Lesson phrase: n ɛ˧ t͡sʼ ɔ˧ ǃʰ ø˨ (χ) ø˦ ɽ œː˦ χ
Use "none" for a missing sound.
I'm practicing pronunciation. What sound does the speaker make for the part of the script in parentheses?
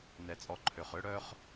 χ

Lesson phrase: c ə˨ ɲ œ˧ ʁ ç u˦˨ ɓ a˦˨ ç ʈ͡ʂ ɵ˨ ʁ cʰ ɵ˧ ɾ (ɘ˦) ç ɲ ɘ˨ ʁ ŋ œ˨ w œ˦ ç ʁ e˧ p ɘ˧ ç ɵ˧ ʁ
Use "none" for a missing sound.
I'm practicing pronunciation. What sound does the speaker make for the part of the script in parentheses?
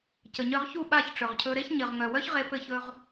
e˦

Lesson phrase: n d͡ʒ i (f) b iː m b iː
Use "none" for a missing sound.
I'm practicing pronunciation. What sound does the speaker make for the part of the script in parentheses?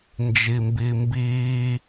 m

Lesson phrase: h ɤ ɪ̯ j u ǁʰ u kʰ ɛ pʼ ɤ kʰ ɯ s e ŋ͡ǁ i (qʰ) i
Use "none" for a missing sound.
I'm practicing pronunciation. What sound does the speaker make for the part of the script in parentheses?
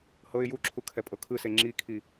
kʰ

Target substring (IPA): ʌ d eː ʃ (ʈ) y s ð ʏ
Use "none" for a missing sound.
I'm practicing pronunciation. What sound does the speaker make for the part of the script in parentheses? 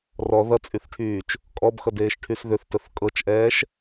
ʈʰ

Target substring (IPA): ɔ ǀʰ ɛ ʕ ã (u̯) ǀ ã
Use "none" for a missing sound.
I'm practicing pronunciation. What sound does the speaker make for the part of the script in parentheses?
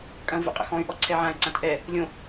y̯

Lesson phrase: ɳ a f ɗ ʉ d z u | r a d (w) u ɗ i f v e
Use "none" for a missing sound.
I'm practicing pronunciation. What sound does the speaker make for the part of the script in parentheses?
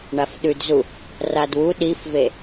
w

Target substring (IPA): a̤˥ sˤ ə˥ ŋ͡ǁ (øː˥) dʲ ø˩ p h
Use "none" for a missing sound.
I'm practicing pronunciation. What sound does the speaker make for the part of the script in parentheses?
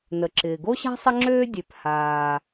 øː˥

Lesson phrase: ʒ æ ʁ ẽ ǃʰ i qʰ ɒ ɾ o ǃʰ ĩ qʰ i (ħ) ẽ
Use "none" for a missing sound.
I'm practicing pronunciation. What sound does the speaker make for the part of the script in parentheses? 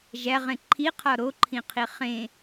χ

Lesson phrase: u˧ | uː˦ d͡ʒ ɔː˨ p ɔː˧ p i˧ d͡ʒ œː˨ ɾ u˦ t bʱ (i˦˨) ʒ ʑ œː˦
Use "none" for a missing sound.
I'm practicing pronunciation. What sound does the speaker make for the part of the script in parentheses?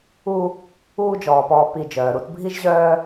i˦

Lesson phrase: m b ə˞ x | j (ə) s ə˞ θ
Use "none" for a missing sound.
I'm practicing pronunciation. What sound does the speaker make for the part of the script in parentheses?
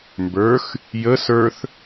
ə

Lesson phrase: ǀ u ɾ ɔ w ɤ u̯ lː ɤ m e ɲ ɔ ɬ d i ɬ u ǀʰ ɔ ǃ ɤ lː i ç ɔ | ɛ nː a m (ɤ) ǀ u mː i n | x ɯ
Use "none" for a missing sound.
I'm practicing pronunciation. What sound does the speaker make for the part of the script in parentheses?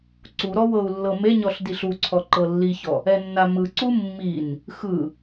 ɯ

